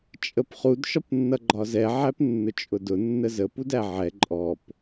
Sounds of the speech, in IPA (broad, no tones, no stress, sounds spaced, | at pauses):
t͡ʃʼ ə p χ u d ʃ ɒ p nː ʌ ɡ͡ǃ ɒ z ɛ ʕ æ p nː ʊ t͡ʃʼ ʊ d ʊ nː ə z ə p u d æ ʕ ɛ ǃʼ ɔ p